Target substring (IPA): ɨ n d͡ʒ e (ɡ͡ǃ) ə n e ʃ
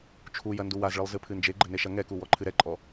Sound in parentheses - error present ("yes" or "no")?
no